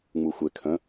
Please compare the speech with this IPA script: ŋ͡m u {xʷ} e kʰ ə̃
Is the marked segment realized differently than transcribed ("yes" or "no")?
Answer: no